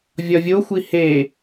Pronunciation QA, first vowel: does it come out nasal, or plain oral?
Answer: oral